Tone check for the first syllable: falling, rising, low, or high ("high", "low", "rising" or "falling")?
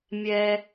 high